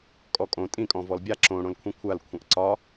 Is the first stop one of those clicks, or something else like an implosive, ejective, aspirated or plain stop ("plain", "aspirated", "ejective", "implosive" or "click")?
ejective